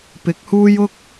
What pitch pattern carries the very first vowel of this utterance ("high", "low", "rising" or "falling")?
rising